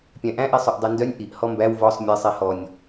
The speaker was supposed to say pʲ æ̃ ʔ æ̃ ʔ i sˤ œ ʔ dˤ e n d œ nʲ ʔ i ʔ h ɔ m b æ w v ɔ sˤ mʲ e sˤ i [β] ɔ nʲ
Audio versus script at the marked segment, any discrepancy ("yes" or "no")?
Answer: yes